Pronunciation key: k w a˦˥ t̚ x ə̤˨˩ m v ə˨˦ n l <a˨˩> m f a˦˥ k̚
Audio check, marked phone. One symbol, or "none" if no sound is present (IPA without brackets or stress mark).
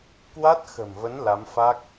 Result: a˨˦